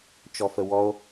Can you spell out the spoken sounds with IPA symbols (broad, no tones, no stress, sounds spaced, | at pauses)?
t͡ʃ ɔ f ə w ɔ o̯